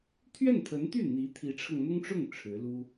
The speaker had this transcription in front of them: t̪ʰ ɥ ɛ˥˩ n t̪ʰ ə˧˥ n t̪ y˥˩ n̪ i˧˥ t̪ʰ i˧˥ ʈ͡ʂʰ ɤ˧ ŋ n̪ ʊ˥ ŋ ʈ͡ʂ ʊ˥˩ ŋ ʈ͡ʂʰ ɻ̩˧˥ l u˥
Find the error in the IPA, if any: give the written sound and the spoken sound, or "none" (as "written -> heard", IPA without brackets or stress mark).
none